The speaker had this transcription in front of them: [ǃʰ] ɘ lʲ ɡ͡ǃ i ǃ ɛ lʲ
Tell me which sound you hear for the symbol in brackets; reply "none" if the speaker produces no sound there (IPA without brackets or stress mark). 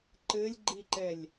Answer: ǃ